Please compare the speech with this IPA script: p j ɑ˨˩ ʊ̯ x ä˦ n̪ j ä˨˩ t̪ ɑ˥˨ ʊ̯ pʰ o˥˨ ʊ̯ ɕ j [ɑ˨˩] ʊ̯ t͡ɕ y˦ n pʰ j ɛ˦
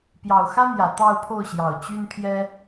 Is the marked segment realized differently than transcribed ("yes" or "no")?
no